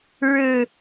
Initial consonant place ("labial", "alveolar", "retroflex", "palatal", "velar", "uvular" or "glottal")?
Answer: retroflex